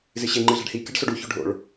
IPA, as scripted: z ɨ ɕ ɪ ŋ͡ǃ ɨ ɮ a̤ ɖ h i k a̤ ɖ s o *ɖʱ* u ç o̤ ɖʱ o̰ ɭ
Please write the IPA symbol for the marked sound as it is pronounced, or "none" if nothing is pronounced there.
ɖ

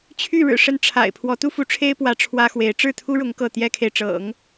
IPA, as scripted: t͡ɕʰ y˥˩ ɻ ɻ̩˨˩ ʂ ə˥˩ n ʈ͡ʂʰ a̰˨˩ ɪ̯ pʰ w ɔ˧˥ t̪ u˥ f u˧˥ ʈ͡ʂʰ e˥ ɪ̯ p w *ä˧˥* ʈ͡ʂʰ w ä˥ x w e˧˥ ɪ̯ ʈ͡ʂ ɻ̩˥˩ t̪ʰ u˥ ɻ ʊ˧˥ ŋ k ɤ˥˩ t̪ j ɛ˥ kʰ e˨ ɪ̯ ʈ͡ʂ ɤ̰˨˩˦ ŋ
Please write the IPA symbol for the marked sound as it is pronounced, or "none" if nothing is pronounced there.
ä˧˥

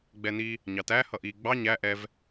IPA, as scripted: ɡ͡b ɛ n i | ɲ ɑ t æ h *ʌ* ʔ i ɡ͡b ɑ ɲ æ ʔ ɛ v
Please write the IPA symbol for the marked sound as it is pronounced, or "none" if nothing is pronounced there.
ʌ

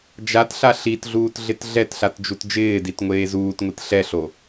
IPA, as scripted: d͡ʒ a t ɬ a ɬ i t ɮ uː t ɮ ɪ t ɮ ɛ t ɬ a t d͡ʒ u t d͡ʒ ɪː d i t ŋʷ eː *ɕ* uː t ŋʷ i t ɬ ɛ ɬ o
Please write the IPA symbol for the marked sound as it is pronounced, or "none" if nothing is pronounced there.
z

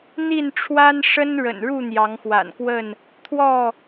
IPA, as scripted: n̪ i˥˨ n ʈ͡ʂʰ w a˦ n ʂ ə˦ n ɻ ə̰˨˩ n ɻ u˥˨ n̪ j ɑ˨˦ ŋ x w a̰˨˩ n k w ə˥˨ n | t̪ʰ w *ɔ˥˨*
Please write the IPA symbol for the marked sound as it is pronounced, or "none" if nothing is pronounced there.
ɔ˥˨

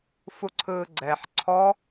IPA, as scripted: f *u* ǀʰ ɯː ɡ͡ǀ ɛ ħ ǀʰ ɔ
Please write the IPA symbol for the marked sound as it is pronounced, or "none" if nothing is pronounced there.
u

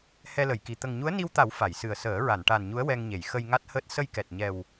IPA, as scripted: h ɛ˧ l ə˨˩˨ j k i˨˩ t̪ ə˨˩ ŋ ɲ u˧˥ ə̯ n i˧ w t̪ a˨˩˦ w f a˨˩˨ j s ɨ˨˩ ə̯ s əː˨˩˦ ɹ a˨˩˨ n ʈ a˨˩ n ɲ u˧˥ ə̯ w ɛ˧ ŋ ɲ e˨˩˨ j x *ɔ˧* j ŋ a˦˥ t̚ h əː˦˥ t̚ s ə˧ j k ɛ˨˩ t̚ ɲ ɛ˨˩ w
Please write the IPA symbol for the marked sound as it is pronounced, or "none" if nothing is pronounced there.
ə˧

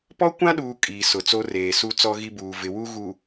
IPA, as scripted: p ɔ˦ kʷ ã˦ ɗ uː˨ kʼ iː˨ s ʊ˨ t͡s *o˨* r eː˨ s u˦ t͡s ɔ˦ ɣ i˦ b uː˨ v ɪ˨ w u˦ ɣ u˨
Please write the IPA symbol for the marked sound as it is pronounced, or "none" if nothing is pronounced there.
o˦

